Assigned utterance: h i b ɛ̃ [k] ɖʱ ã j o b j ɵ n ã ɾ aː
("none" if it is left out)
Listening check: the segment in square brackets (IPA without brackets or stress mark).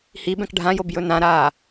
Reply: k